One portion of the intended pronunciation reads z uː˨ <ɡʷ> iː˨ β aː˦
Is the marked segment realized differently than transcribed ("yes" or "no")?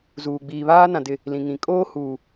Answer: yes